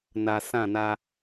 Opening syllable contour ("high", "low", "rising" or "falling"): low